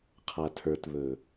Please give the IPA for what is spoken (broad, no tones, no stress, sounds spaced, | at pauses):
qʰ a tʰ ə˞ t β ɵː